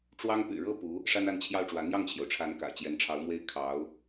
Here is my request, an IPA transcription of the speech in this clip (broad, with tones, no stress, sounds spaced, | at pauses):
ʈ͡ʂ w ɑ˥ ŋ p y̰˨˩ ɻ ɤ˥˩ p u˧˥ | ʂ a˥ n a˥˧ n t͡ɕʰ j ɑ˥˩ ʊ̯ ʈ͡ʂ w ä˧˥ n̪ j ɑ˥˩ ŋ t͡ɕʰ j o˩ ʊ̯ ʈ͡ʂʰ a˧˥ n k ä̰˨˩ t͡ɕ j ɛ˧˥ n ʈ͡ʂʰ ɑ˧˥ ʊ̯ m w e˥ ɪ̯ kʰ ɑ˧˥ ʊ̯